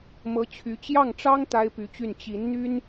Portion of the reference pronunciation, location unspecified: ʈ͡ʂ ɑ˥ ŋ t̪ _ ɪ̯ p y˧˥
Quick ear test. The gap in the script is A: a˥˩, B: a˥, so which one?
B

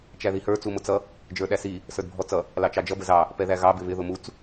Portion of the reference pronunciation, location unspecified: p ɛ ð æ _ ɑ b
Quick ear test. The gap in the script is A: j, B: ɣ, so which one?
B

